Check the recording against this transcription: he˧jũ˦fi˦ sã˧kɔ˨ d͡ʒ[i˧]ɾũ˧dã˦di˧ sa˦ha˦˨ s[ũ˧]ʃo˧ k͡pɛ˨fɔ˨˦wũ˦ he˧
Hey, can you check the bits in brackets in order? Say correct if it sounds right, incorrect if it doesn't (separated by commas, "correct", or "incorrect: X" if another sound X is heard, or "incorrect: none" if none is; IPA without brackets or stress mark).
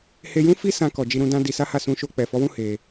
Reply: correct, correct